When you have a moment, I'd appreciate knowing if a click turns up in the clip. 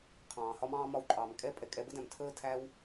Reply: yes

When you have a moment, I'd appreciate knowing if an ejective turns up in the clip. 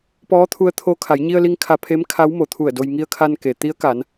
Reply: no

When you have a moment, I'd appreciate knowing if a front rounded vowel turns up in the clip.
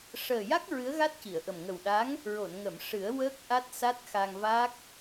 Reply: no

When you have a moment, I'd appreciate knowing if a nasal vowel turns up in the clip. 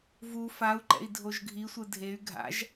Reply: no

